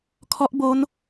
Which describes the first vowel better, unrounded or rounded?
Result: rounded